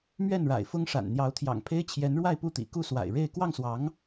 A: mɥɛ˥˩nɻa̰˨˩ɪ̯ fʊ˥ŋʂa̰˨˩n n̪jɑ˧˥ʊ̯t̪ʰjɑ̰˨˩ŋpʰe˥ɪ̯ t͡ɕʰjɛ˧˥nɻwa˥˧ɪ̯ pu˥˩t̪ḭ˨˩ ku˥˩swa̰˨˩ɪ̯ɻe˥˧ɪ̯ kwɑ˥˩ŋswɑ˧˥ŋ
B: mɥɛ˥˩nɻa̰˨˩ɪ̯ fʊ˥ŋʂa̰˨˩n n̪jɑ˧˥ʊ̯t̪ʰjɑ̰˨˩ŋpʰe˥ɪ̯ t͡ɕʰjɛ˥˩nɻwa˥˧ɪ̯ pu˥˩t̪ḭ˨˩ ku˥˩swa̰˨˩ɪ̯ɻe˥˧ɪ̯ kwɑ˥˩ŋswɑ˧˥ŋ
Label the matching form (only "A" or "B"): A